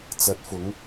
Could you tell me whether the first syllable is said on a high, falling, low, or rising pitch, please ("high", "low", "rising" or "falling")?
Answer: rising